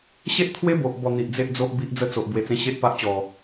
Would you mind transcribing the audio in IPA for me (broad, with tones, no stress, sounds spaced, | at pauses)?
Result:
ɕ e˦ ʔ t̪ʰ w e˦ b o˨ ʔ b ɔ˨˩ n̪ i˨ ʔ d͡z e˦ ʔ d͡z o˦ ʔ b i˦ ʔ d͡z ə˥˧ t͡s o˨ ʔ b w e˨˩ t͡s ẽ˧ ɕ e˦ ʔ p a˦ ʔ t͡ɕ ɔ˨˩